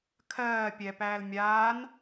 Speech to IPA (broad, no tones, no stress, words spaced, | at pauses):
kʰɜː pʲɛpæːl mʲaːn